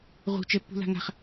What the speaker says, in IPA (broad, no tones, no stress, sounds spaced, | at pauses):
ʁ ṳ t͡ʃ ɛ pː ṳ l a̤ ŋ a̤ χ